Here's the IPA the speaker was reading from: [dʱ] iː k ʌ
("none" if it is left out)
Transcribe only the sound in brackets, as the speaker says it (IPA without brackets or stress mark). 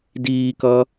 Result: d